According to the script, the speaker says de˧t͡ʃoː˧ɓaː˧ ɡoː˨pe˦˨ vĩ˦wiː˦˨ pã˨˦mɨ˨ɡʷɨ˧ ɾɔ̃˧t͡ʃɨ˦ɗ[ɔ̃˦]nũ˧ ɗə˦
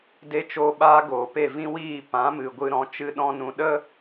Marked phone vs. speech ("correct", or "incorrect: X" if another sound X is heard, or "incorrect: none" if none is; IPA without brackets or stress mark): correct